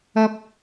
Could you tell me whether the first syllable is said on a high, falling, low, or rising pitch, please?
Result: high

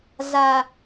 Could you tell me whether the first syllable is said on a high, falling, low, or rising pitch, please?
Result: low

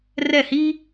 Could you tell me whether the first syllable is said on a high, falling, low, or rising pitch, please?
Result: falling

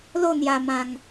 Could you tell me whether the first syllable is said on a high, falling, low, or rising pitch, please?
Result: falling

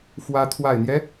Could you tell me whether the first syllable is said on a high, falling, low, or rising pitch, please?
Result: rising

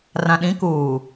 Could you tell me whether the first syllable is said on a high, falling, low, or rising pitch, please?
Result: low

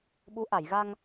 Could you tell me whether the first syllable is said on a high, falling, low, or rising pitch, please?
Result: rising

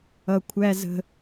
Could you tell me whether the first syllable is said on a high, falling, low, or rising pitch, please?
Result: high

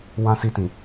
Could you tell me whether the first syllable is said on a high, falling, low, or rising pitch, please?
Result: high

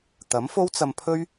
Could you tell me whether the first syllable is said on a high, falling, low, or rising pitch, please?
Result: rising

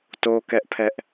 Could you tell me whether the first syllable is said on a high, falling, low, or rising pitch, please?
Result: high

